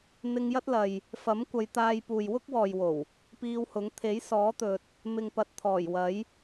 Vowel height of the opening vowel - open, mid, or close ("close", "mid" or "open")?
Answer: close